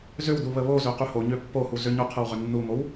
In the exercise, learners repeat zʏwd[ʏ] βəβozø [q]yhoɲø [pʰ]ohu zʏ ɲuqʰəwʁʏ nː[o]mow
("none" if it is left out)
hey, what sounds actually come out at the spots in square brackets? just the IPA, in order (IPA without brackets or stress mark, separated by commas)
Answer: u, q, pː, u